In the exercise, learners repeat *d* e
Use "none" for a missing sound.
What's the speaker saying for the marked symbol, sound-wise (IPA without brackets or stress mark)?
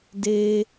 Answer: d